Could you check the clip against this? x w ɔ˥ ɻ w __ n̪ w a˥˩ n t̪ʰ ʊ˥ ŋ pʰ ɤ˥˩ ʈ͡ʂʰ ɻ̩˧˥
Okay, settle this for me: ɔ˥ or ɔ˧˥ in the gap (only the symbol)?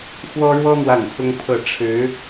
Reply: ɔ˥